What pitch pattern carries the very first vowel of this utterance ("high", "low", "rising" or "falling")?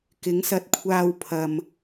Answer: rising